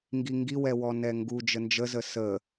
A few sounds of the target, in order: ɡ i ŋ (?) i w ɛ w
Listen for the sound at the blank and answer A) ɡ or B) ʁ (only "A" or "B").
A